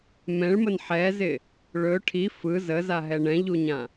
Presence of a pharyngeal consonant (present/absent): present